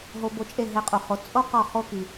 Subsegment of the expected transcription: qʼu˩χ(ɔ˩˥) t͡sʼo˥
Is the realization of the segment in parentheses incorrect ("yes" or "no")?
yes